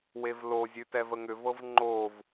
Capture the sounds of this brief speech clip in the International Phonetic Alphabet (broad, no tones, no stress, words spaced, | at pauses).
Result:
wevlozʲʉ tɛvəŋʏvɤv ŋ͡ǃov